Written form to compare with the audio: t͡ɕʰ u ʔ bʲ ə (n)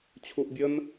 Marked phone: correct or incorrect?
correct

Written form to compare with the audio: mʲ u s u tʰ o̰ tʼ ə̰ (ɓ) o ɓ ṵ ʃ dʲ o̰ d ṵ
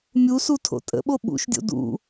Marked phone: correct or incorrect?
correct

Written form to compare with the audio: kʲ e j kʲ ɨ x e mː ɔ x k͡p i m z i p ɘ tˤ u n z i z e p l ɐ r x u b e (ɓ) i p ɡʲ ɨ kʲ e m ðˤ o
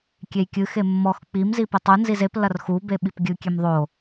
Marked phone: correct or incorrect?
correct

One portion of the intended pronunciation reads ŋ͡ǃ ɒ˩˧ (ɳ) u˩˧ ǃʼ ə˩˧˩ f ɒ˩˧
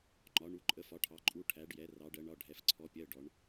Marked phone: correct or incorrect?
correct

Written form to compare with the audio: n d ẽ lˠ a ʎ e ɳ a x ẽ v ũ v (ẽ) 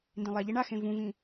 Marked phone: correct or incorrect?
incorrect: ĩ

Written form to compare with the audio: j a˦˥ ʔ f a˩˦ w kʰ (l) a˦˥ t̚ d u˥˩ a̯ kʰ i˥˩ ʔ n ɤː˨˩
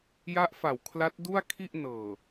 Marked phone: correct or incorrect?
correct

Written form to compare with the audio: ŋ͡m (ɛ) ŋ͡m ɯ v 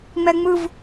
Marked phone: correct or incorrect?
correct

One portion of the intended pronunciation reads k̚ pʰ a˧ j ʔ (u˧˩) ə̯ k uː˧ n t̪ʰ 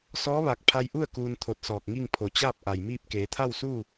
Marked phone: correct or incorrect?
incorrect: u˥˨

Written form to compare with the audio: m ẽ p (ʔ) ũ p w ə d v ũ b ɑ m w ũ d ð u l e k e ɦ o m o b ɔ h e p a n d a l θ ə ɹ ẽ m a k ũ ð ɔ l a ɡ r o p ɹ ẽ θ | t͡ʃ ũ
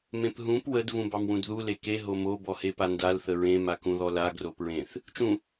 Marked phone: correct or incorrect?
incorrect: ɦ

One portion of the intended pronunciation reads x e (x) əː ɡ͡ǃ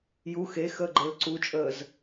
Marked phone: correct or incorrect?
correct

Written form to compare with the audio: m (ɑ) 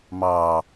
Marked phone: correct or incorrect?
correct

